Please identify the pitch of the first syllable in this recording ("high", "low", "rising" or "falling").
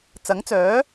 rising